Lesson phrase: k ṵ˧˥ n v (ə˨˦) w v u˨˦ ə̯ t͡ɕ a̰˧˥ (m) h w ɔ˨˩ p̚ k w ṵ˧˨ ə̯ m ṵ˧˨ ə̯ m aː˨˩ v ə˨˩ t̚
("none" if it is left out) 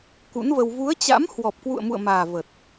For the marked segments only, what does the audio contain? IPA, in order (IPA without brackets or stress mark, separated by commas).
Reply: ə˧, m